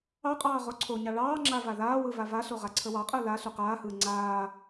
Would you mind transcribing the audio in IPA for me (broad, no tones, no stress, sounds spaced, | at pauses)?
ɑ qʼ ɑː ʁ o ǀʰ o ɲ ɑ ɭ ɑː ŋ͡ǁ a v a ð aː w ɯ v a v a ɬ o ʁ a ǀʰ ə w ɑ qʼ əː l a ɬ u q aː h ɯː ŋ͡ǀ aː